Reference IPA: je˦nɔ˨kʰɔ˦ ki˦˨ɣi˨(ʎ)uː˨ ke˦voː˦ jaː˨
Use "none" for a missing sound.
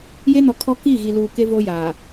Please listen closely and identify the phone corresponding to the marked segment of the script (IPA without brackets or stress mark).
l